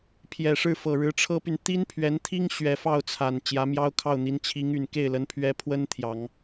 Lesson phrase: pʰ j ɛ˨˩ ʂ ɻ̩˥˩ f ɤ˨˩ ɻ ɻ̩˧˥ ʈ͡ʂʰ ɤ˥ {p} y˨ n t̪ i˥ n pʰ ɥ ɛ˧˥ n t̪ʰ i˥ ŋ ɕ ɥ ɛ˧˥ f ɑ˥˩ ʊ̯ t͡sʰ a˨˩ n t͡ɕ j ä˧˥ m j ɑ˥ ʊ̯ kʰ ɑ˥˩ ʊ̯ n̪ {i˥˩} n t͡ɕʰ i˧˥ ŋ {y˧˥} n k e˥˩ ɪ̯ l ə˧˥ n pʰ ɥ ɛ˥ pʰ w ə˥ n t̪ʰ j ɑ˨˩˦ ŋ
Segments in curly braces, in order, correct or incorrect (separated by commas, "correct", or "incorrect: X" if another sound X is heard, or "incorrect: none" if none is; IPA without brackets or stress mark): correct, incorrect: i˧˥, incorrect: y˨˩